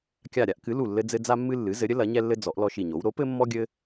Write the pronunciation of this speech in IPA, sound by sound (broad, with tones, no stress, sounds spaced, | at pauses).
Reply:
kʲ a˧˩ ɾʲ a˦ ʔ k ɨ˩˥ l u˧˩ lː ɘ˦ d͡z ɘ˦ d͡z a˦ mː ɨ˦ lː ɨ˩˥ z ɘ˩˥ ɾʲ ɘ˩˥ l ɐ˩˥ ɲ ɛ˦ lː ɘ˦ d͡z ɔ˩˥ ʔ l ɔ˦ ʃ i˧˩ ɲ o˩˥ w ɾ o˩˥ p ɘ˦ mː ɔ˦ ɡʲ ɘ˦